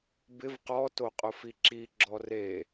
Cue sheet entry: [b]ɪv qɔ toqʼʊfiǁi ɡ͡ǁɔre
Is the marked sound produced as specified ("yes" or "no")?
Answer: yes